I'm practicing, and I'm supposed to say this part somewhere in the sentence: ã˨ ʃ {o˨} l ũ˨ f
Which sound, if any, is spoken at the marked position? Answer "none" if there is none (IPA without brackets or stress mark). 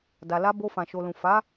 o˨